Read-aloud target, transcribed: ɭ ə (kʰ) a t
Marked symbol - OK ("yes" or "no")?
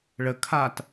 yes